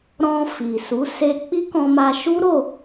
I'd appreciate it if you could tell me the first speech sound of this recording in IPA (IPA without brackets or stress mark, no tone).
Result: ɾ